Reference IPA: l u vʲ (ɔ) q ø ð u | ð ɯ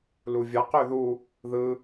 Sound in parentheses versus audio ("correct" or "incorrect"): incorrect